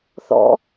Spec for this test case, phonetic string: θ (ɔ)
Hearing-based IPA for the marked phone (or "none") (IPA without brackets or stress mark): ɔ̰